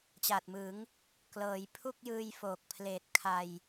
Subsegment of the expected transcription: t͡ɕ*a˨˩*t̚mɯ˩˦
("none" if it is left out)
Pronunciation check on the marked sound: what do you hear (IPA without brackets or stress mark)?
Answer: a˨˩